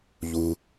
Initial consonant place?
palatal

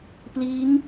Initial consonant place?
labial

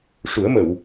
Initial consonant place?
retroflex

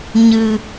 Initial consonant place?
palatal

